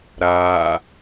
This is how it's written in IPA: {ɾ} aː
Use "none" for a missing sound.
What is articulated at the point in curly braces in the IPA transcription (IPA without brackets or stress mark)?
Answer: ɾ